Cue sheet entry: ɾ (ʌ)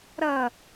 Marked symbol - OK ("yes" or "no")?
yes